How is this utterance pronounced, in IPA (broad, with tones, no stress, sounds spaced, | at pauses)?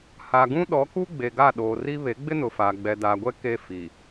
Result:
h a˨ ɡ ũ˦ ɗ ɔ˨˦ k u˦ ɡ͡b e˨ ɡ a˦˨ ɗ oː˨ r i˦ β e˨˦ ɡ͡b ɪ˦ n ʊ˨ f aː˨ ɡ͡b ɛ˨ d aː˨ ɡʷ ɛ˦ k e˦ f i˨